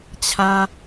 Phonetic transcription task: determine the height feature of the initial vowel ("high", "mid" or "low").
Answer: low